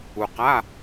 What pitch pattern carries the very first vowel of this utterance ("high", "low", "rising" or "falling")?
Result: low